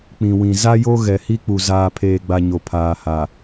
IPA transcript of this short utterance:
k͡pĩ˨wĩ˨ za˦ jo˦ ɣɛ˨hi˦k͡pu˨ zaː˨pʰeː˨ɡ͡ba˨ ɲo˨pʰaː˨ha˨

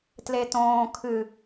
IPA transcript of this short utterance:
tletõː kʰɨ

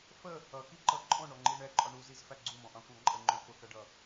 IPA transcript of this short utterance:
fə | ʌkiǃʌ ǃʼɔ̃ɳɔŋ͡ǃi ɳɛǃʼɒ ɳuzizfæ ɡ͡ǀumɔ̃ʔɑ̃kʷɑ̃ ǃʼəŋ͡ǃɔ̃ fʊkʌɖʌ

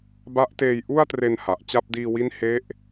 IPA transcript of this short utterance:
ba˦˥ʔteː˧j ʔu˥˩a̯tre˧n ha˨˩ʔt͡ɕa˥˩p̚ diː˧wi˦˥nhe˦˥ʔ

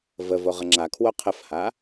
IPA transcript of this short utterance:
vəvo ʁəŋ͡ǁakʰwo qʰəfha

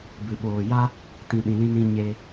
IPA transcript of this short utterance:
bɨ˨ɓoː˨ ja˦ | tĩ˨ ɗĩ˨lĩ˧nĩ˧ ɲe˧

